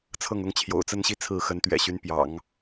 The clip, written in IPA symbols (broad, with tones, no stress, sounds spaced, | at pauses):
t͡sʰ ɤ˥˩ ŋ ʊ˥ ŋ t͡ɕʰ j o̰˨˩ ʊ̯ t͡s ə˥˧ n ɕ i˥˧ t͡sʰ ɹ̩˥˩ x ə˧˥ n t̪ ɥ ɛ̰˨˩ ɕ y˧˥ n p j ɑ̰˨˩˦ ŋ